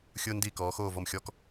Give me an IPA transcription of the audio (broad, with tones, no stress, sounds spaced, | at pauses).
xʲ ʊː˥ n d iː˥˨ k ɔː˩˥ x oː˥˨ v ɔ˥˨ m xʲ ɔ˥ k